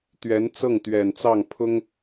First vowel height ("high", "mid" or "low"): mid